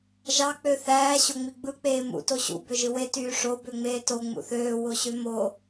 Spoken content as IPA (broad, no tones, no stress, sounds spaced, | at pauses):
ʒ ɑ k͡p ø θ æː ɕ o ŋ͡m i ɡ͡b ɯ k͡p eː m ṵ t o ɕ ṵ b ø ʒ ɯ w e t yː ʂ o b ø ŋ͡m eː t o ŋ͡m ṵ θ øː w o ɕ ø m o